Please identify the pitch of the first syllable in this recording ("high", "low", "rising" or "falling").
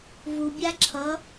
low